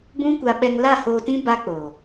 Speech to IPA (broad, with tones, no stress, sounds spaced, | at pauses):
b ũ˦ kʷ a˧ ɓ ɛ˧ ŋ l a˦˨ h oː˧ t ĩ˦ b a˦ k͡p o˨